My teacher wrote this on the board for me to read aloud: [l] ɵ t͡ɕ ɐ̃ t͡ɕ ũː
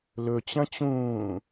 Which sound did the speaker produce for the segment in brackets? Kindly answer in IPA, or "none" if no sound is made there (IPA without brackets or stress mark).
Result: l